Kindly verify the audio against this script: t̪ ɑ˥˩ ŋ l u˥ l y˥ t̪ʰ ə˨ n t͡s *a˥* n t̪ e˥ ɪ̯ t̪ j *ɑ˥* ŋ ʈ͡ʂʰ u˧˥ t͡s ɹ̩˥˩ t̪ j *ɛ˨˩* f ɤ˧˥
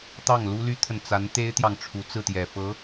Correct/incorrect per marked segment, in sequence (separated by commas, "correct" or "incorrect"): incorrect, incorrect, correct